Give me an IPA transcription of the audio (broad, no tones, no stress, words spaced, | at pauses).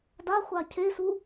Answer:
da χʷacʰesu